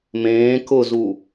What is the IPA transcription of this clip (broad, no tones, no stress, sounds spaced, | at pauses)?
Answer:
m ẽː k ʊ z u